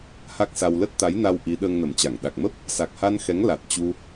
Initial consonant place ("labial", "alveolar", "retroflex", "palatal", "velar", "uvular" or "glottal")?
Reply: glottal